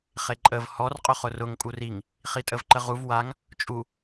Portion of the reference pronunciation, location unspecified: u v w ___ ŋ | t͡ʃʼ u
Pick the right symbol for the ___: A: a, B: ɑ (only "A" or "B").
A